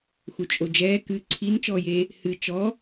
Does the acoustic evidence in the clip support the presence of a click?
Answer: yes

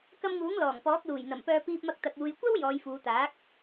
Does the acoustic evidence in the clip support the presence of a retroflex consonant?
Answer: no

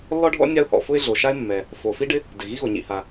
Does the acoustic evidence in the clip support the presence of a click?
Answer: no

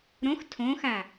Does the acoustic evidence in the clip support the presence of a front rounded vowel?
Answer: no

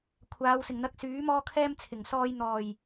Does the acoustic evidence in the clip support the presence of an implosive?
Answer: no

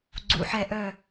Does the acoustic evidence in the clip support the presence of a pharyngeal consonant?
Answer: yes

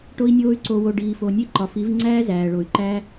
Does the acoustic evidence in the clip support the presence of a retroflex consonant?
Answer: yes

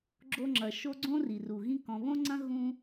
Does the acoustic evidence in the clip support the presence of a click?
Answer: yes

